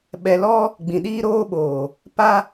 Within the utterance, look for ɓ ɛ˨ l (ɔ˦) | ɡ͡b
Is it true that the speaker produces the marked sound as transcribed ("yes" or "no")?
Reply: yes